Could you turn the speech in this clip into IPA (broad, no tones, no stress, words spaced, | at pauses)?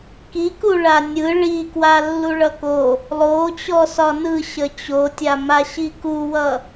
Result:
kiku ɭanʲɯ ɭi kwalːuɭʌko | lˠot͡ɕɔ sɒnɯ ɕət͡ɕotʲama ɕikuwʌ